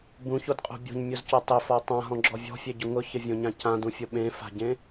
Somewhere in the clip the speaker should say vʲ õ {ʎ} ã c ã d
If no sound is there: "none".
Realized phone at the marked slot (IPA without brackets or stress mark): ɲ